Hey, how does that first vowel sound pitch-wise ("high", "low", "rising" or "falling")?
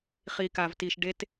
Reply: low